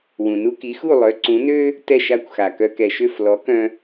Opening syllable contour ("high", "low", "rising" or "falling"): low